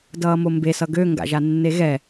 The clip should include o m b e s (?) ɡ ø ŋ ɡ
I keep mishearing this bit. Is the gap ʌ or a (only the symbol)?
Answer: ʌ